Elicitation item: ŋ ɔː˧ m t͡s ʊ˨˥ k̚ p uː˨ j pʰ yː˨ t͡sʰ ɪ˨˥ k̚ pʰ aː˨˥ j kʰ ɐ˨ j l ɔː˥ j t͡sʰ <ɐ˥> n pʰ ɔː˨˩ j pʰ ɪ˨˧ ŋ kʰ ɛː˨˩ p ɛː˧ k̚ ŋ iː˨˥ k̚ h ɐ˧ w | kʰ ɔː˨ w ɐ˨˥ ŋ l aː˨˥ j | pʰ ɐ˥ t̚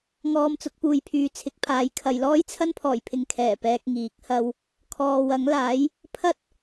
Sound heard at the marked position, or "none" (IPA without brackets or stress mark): ɐ˥